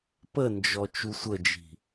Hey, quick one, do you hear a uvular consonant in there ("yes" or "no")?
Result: no